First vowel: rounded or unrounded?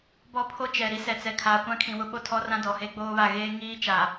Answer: rounded